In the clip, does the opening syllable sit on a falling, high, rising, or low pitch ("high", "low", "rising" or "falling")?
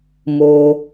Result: low